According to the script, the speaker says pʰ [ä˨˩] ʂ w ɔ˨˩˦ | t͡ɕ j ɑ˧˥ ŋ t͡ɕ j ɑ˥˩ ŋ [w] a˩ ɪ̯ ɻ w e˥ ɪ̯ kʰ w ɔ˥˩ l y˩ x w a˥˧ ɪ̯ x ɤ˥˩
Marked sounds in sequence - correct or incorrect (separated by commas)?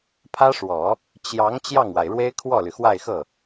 incorrect, correct